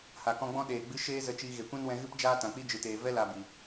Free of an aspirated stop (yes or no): yes